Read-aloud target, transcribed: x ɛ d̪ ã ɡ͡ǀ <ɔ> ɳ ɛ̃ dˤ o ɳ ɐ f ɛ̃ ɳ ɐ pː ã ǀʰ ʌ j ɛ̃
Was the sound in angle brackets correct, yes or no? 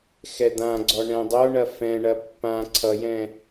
yes